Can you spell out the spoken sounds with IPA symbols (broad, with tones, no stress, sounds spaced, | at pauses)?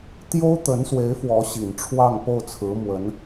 t̪ j o˥ ʊ̯ t̪ ə˧˥ n s w e˧˥ ɪ̯ f w ɔ˧˥ ɕ i˨˩ n ʈ͡ʂʰ w ɑ˥˧ ŋ p o˥˩ ʊ̯ t͡sʰ ɹ̩˧˥ m w ə˧˥ n